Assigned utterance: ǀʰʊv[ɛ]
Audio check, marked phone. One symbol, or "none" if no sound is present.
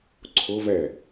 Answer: ɛ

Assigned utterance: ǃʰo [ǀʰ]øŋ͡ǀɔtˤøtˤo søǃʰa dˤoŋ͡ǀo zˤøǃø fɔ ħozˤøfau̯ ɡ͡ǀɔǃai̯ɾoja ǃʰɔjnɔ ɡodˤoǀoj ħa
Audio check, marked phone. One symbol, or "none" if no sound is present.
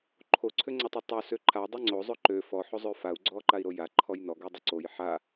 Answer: ǀʰ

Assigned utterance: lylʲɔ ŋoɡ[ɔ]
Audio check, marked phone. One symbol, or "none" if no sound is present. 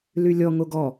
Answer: ɔ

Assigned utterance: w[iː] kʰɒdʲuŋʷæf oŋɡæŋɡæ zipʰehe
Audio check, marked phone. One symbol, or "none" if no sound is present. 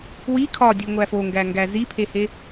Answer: i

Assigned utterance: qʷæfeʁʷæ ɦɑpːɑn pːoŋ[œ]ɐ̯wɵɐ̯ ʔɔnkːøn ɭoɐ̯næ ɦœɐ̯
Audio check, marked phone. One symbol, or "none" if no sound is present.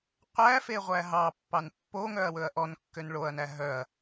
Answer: œ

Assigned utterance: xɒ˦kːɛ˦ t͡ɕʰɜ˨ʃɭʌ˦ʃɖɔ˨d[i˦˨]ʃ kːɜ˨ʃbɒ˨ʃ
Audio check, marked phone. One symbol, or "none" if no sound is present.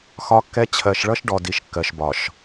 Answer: i˨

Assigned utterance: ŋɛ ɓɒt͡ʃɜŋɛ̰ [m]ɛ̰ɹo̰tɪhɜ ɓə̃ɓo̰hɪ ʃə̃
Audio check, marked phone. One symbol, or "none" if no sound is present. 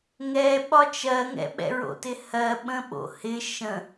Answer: ɓ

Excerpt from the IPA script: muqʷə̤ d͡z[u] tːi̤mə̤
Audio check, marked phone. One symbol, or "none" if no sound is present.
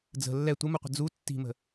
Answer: u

